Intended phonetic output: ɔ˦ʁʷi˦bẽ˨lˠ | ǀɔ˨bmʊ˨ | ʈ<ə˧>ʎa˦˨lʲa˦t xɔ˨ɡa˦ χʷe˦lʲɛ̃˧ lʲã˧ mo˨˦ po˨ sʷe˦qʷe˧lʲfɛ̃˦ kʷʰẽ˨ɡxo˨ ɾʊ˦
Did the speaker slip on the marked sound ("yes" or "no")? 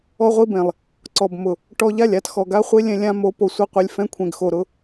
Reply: yes